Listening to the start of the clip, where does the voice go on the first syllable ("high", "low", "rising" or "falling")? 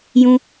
high